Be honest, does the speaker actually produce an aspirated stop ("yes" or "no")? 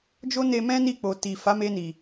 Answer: no